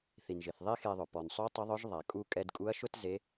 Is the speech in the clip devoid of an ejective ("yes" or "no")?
no